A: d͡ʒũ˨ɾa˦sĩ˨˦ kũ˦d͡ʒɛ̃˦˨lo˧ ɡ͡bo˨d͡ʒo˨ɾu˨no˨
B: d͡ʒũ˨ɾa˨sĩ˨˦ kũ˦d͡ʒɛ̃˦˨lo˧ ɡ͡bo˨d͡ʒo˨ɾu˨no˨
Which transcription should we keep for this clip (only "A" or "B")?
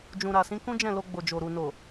B